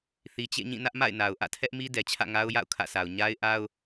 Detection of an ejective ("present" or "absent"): absent